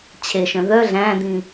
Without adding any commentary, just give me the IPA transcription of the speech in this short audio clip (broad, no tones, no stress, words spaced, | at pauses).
t͡ɕʰeʃœ̃ ðœ ɮæ̃d̪ĩ